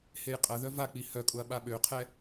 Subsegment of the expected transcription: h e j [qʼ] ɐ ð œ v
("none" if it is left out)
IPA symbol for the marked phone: qʼ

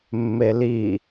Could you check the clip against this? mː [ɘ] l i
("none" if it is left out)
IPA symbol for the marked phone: e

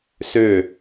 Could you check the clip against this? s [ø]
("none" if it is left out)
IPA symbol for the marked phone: ø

